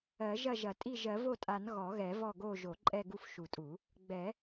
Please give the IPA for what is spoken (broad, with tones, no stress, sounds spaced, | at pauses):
ɜ˨˩˦ ʒ ɐ˦˨ ʒ ɐ˨˩˦ tʼ i˦˨ ʒ ɜ˨˩˦ v o˦˨ tʼ a˨˩˦ n ɣ ɔ˨˩˦ ɣ ɛ˨˩˦ v ɔ˦˨ ɡ o˦˨ ʒ o˨˩˦ ǃʼ ɛ˦˨ ɡ u˦˨ f ʃ u˨˩˦ tʼ u˨˩˦ | ɡ͡b ɛ˨˩˦